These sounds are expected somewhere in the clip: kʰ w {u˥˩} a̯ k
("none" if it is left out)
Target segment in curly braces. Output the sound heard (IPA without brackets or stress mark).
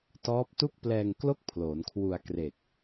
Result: u˧